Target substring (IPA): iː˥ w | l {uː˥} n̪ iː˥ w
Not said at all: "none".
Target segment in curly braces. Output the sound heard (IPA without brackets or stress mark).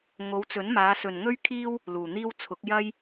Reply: uː˨˩